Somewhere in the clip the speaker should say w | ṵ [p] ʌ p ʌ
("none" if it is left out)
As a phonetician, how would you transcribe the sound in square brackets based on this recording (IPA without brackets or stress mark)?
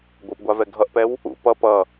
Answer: p